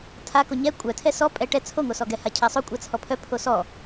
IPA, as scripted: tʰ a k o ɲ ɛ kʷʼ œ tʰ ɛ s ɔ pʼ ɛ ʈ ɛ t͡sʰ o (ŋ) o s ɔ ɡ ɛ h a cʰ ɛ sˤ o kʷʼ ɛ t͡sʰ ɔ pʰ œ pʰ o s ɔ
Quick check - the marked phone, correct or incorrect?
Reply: correct